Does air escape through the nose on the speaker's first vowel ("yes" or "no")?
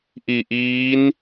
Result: no